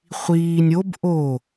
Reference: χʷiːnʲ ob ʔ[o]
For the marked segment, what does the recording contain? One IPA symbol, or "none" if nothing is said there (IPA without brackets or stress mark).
o